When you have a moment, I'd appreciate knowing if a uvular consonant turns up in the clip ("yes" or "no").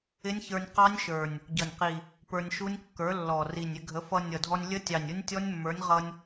yes